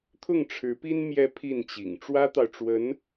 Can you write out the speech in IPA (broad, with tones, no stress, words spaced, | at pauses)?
t̪ʰʊ˥˩ŋʈ͡ʂʰɻ̩˧˥pi˥n mjɛ˧˥ pʰi˥˩nt͡ɕḭ˨˩ŋ ʈ͡ʂwä˥t̪ɑ˨ʊ̯ʈ͡ʂwə˧˥n